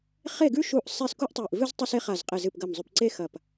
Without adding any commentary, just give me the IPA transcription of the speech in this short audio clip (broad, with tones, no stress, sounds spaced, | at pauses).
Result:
χ e˥˨ ɡ ʉ˥ ʃ u˥˨ ʔ sˤ e˥˨ s k u˥ ʔ tˤ e˧˩ ʔ v ɨ˥ z tˤ ɐ˥ s e˥ χ a˧˩ z qʼ e˧˩ z ɨ˧˩ p ɡ ɐ˧˩ m zˤ ʉ˧˩ p ǀ e˥ x ɐ˧˩ p